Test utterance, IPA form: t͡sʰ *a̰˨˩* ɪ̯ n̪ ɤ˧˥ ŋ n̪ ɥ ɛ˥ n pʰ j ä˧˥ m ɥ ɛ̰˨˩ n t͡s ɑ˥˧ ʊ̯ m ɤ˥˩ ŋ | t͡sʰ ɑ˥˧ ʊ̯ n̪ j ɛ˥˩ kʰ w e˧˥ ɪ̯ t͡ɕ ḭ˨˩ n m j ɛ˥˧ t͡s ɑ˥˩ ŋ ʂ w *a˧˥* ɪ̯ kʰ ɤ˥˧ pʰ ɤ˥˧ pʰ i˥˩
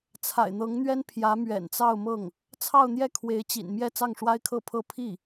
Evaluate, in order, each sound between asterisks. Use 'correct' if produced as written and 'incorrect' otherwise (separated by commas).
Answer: correct, incorrect